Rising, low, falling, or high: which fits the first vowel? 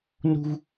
high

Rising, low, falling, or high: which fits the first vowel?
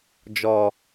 low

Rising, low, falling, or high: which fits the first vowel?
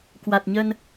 low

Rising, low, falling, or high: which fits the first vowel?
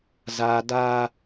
high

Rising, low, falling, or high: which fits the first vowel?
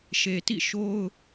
low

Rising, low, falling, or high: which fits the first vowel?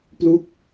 falling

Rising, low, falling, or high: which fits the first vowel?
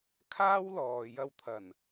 high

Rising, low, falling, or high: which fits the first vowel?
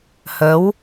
rising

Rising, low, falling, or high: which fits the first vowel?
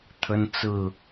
high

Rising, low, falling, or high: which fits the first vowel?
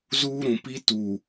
high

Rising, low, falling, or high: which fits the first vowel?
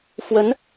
rising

